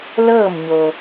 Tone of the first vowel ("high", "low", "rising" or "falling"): falling